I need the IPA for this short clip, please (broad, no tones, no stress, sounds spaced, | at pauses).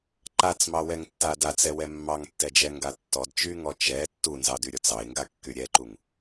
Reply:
ǃ a t͡s m ɑ w ɛ ŋ tː a d a t͡s ɛ w ɛ mː ɑ ŋ tː ɛ d͡ʒ ɛ ŋ ɡ a tː ɔ d t͡ʃ y ŋ ɔ t͡ʃ ɛ tː u n z ɑ d y ɾʲ ɔ t͡s ɑ ɪ̯ ŋ ɡ a kː y ɾʲ ɛ ǃ u ŋ